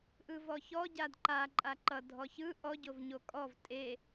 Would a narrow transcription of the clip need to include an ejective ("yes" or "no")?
yes